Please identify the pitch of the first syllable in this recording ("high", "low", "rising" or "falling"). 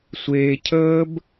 low